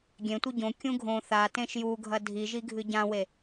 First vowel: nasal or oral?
nasal